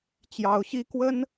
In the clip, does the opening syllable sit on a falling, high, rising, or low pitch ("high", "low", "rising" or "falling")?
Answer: high